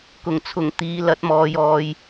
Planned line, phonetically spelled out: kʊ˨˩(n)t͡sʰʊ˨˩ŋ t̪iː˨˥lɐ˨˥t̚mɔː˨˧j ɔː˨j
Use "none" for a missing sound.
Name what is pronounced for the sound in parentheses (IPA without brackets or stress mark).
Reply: ŋ